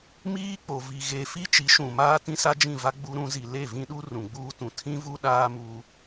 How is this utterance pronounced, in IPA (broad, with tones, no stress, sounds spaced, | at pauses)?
m iː˦ k͡p o˨ v i˨ ɣ e˨ f i˦ t͡ʃ i˨˦ ʃ ũ˨ m aː˦ t ĩ˦ s a˦ d͡ʒ ĩ˦˨ v a˦ ɡ͡b u˦ ɾ ũ˦ z i˨ l e˦˨ v ĩ˦ ɗ u˦ r ũ˨ ɡ͡b uː˦ t ũ˨ tʰ ĩ˦ v u˦ ɗ aː˦ m uː˦